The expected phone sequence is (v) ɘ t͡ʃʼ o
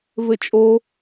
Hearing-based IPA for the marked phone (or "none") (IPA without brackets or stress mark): v